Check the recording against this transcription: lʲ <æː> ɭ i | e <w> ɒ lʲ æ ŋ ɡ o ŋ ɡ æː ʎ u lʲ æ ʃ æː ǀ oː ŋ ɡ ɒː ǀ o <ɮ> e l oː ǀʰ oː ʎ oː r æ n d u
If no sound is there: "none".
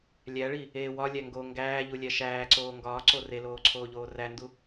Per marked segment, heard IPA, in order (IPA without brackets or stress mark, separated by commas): æ, w, r